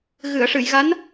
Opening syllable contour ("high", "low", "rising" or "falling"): low